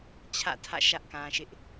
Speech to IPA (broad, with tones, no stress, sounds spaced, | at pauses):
t͡ɕʰ ä̰˦˨ tʰ ä̰˦˨ ʃ ä˦ ʔ k ã˨ ʃ ɪ˦ ʔ